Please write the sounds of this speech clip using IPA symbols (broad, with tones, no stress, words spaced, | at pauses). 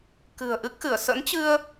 kɨ̤˨˩ə̯ ʔɨ˦˥k̚xɨ˧˩ə̯ sə̰˧˥nt͡ɕɨ˧ə̯